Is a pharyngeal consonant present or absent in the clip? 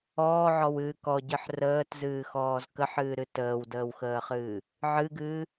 present